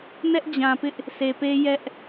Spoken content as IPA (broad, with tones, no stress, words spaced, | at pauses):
nɛ˦ʔd͡ʑã˨pɪ˦ʔ | sʰe˨pe˦jɛ˦ʔ